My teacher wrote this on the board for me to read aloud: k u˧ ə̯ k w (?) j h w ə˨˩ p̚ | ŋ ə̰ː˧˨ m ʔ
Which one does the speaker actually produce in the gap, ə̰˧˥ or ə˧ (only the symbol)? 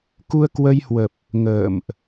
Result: ə˧